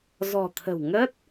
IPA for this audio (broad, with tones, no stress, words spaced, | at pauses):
zɔ̤˨˩t̪ʰə̤˨˩w ŋə˦˥t̚